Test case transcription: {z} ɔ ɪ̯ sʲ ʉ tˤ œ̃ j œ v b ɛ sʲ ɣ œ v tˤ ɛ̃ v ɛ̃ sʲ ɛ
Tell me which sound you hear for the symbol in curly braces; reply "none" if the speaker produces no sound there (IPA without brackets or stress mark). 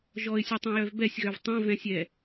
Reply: ʒ